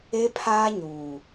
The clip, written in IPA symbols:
e˦ pʰ aː˦ ɲ uː˨

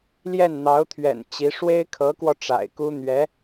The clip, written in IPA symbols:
l j ɛ˥˩ n n̪ ɑ˧˥ ʊ̯ t̪ʰ ɥ ɛ̰˨˩ n t͡ɕ i˧˥ ʂ w e˥ ɪ̯ kʰ ɤ˧˥ k w ɔ˧ ʈ͡ʂ a̰˨˩ ɪ̯ k u˥ n̪ ɥ ɛ˧˥

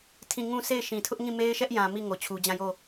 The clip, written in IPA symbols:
tʰ ĩ˦˨ ŋ ũ˦˨ s e˦˨ ɪ̯ ʃ ĩ˨ tʰ ʊ˦ ʔ ŋ ĩ˦˨ m e˦ ɪ̯ ʃ ɛ˦ ʔ j ã˨ m i˦˨ ŋ o˨ t͡ɕʰ u˨ d͡ʑ ã˦˨ j o˦˨

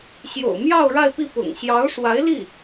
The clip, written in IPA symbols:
ɕ j o̰˨˩ ʊ̯ m j ɑ˥˧ ʊ̯ ɻ a˥˧ ɪ̯ p i˥˩ p ʊ̰˨˩ ŋ ɕ j ɑ˧˥ ʊ̯ ʂ w a˧˥ ɪ̯ l i˥˩

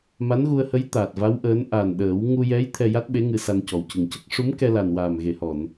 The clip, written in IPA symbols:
m a˧˥ n ɣ u˧ ə̯ h ə˧˥ j t̪ aː˨˩ t̚ v a˧˥ w ʔ əː˧˥ n ʔ a˨˩ n ɗ əː˨˩˦ w ŋ u˧ j ɛ˧˥ j t̪ʰ ɛ˧ j a˦˥ t̚ ɓ e˧˥ ŋ ɨ˧ s a˧ n c ɔ˨˩ w c ɨ˨˩ ŋ c ə˦˥ k̚ ʂ u˧˥ m k ɛ˧ l a˨˩ n w aː˨˩ m ɣ e˨˩˨ h ɔ˨˩˨ n

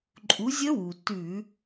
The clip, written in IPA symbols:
ǃʼ u˨˦ zʲ ə˦˥ w u˩ t ʉ˧˩˧

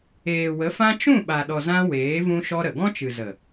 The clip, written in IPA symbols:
eː˨ w ə˨˦ f ã˦ t͡ʃ ũ˦˨ ɓ a˨ ɗ ɔ˨ z ã˦ w eː˨˦ v ũ˦ ʃ ɔ˦ ɾ ə˨ ɡ ɔ̃˦ t͡ʃ ɨ˨ z ə˨

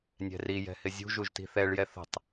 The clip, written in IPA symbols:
nʲ ɛ̤ r i j ɛ̤ h ɪ zʲ ṳ ʒ u ʒ t i̤ θ ɛ ɭ j ɛ θ ə̤ tˤ

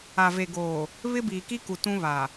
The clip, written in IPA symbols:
a˨ v e˨ ɡ oː˨ | β ɪ˦ b iː˨ k i˦ k u˨ t ũ˦ β a˨

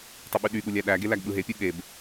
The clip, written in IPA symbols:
tˤ ɯ ɓ y ɗ y ɠ u lʲ æ ɗ æ ɡ e l æ ɡ ɓ ɯ ɦ e pʲ u ɠ e b

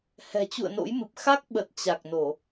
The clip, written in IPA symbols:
h ɛ̤˨˩ t͡ɕ ṵ˧˨ ə̯ n o̰˧˥ j m ɨ˨˩ p̚ x a˦˥ k̚ ɓ ə˨˩ t̚ t͡ɕ a˨˩ k̚ n o˧˩˨

